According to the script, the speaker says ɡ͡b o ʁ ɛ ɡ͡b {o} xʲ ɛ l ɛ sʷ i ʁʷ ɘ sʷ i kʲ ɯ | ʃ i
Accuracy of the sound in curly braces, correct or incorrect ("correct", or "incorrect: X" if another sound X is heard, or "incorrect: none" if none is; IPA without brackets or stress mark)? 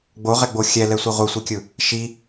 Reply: correct